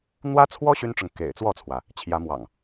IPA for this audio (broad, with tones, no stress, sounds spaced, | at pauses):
n̪ w ä˦ t͡sʰ w ɔ˦ ɕ y˦ n ʈ͡ʂ ʊ˨ ŋ k ḛ˨˩ ɪ̯ t͡s w ɔ˥˨ t͡sʰ w ä˩ | t͡ɕʰ j ä˨˦ m w ɑ̰˨˩ ŋ